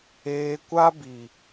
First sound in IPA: eː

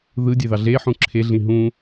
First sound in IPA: ð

